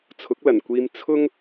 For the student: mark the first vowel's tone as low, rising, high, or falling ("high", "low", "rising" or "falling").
rising